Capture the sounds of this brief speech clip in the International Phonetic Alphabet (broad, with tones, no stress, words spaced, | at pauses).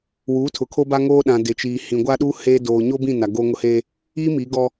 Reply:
wuː˨˦tʰʊ˨ kʰo˦ba˦ŋoː˦ɗã˨ dɪ˨t͡ʃiː˨ hĩ˨ ɡʷa˦ɗuː˦ heː˦ doː˨ɲo˦bĩ˦˨ na˨ɡoː˦ŋʊ˦heː˦ | iː˦ mi˨˦ɡɔ˦